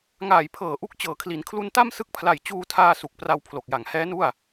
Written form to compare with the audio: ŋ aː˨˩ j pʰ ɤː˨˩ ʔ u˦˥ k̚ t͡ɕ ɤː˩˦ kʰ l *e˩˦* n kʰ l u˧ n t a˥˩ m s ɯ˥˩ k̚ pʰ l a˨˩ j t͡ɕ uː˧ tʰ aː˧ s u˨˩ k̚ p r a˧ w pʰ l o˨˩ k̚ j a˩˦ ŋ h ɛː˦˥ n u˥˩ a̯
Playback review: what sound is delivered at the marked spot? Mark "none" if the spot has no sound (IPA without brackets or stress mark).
i˩˦